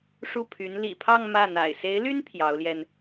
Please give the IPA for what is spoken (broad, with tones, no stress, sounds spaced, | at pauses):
ʂ u˥˩ pʰ y˧˥ n l ḭ˨˩ pʰ ɑ˥˧ ŋ m ä˥˩ n̪ a̰˨˩ ɪ̯ s e˧˥ ɪ̯ l y˥ n pʰ j ɑ˧˥ ʊ̯ l j ɛ˧ n